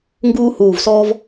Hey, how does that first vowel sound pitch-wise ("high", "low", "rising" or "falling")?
high